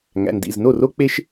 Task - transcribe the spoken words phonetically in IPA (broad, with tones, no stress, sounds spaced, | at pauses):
ŋ æ̰˩˧˩ n d ḭ˩˧˩ z n o˥˩ r o˦ k͡p e˦ ʃ